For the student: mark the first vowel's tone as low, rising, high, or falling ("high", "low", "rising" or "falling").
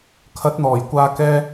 rising